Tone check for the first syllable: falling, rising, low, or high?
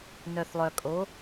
low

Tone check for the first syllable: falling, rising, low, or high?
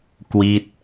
falling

